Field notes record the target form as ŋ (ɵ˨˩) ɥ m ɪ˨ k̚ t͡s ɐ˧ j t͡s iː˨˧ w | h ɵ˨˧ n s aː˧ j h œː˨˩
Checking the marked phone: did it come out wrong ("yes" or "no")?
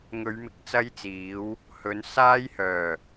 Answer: yes